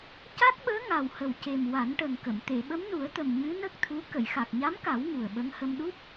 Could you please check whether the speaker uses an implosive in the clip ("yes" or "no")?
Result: yes